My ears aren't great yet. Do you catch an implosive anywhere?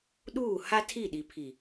yes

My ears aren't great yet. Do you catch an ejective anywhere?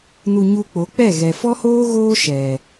no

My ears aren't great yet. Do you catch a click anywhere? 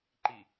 yes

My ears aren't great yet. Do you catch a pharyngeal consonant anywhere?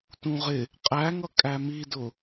no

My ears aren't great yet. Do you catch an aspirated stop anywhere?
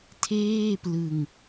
yes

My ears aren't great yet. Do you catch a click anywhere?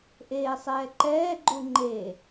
yes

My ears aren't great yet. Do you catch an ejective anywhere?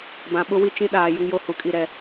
yes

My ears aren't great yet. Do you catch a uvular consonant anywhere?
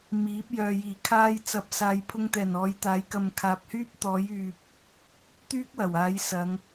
no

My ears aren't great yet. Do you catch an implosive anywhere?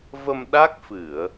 yes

